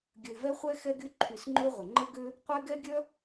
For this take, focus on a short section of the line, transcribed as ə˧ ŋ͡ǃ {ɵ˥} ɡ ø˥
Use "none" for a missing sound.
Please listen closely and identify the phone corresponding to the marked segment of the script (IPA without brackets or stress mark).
ə˥